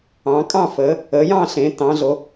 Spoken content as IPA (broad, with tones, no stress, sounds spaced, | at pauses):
ɑ̃ː˩˧ kʼ ɑ̃˥˨ f əː˩˧ | əː˩˧ j ɑ̃˥˨ ɬ ẽː˩˧ t ɑ̃˩˧ ɮ o˩˧